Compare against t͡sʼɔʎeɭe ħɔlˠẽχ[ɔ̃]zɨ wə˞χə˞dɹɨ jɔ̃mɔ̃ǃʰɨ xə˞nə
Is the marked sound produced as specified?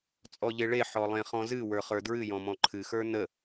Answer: yes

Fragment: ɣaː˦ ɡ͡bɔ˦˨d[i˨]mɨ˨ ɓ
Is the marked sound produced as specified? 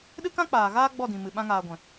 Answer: no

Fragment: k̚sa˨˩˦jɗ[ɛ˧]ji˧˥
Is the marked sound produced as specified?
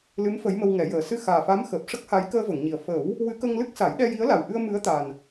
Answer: yes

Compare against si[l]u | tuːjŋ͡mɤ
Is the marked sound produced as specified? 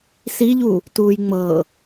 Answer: no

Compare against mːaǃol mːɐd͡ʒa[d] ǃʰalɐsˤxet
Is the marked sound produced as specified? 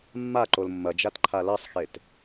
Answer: no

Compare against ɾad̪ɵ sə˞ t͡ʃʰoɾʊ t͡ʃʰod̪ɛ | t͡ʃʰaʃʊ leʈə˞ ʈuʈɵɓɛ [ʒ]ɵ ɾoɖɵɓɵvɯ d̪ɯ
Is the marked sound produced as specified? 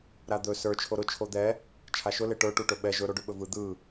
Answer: yes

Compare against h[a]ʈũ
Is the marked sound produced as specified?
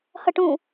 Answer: no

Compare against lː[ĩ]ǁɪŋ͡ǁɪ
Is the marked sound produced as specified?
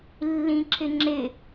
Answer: yes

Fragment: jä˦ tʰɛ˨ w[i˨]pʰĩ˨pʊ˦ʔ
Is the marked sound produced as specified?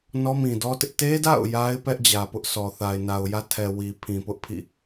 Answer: yes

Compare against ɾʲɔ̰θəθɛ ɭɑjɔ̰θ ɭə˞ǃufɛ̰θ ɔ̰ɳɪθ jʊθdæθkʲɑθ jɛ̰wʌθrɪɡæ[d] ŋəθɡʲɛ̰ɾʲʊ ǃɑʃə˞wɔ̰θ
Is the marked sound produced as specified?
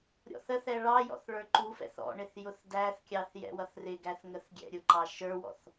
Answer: no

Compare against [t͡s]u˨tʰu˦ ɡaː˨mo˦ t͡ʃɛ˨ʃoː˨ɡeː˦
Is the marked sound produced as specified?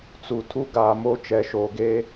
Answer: yes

